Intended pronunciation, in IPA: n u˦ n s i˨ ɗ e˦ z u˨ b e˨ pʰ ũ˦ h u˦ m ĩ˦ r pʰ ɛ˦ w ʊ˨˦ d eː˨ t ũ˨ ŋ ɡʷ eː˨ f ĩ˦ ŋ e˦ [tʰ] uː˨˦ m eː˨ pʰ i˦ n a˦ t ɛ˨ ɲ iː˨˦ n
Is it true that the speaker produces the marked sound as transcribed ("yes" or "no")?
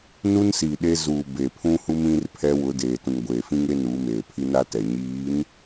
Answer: no